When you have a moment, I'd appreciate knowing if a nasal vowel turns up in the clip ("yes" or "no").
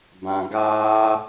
yes